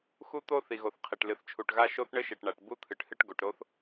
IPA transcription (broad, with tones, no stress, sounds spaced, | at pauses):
x u˥ t̪ o˥ θ i˩ ɣ o˩ θ qʰ e˩ ʈ l ɨ˩ θ t͡ʃʰ u˩ ʈ ɣ a˥ ʃ o˥ θ ɳ ɘ˥ ʃ e˩ ʈ ɳ a˩ ʈ b u˥ t̪ʰ ɨ˩ ʈ h ɨ˥ ʈ ɡ o˩ ʈ ɾ o˥ θ